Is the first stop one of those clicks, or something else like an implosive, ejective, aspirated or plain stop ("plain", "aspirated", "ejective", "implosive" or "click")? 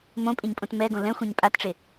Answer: ejective